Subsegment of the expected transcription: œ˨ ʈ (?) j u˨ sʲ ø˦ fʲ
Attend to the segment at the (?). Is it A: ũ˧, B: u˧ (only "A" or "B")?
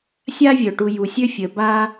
B